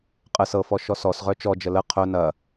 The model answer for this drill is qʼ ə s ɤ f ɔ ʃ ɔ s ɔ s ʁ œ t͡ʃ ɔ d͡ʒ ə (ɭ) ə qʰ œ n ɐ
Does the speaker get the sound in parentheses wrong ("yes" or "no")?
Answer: yes